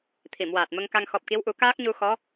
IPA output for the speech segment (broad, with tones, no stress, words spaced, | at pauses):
t̪ʰi˨˩˨mwaː˨˩t̚mə˧ŋka˧ŋ xɔ˨˩p̚ki˧˥wʔu˨˩˦kaː˦˥k̚ ɲu˧xɔ˧˥